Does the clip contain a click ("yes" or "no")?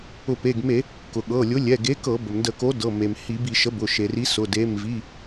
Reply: no